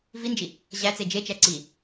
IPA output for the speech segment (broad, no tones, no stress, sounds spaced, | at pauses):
v i n d͡ʒ i | ʑ æ t͡s e d͡ʒ e t͡ʃ æ ǀ i